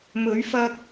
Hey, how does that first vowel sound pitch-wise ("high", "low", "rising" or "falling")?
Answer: rising